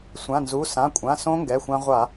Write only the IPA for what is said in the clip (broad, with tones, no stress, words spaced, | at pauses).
sʷã˩˧˩nzu˩˧˩ sã˩˧˩kʷʼã˩˧˩ sõ˦˥ŋɡɛ˩˧˩xʷã˧ ʁʷa˧˩˧